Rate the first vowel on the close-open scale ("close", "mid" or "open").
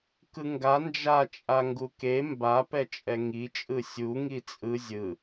close